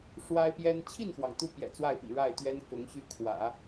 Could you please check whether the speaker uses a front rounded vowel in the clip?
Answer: yes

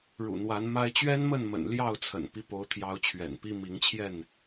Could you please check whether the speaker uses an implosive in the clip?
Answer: no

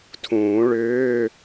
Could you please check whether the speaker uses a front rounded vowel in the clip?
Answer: yes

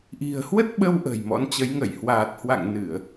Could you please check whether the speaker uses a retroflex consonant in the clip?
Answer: no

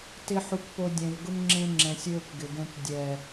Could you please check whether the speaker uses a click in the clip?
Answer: yes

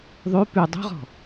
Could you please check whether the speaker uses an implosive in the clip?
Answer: no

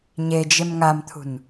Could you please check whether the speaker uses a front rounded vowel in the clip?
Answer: no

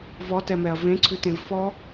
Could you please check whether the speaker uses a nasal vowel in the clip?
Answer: yes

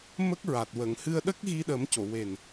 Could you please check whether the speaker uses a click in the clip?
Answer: no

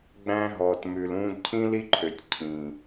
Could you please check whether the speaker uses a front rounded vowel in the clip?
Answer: yes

